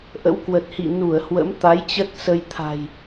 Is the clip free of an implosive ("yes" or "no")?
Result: yes